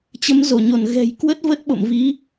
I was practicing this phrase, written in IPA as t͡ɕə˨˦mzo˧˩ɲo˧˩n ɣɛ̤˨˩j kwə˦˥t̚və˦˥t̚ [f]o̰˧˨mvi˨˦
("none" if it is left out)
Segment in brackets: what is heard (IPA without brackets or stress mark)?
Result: ɓ